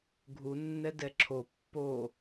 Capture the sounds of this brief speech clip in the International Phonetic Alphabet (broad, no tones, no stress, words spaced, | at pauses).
ɡʱu nːɛdɛǁʰo pːo